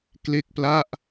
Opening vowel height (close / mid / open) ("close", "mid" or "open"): mid